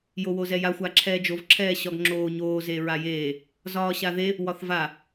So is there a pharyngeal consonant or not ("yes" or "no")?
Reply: no